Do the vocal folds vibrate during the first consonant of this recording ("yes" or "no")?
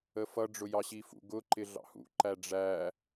no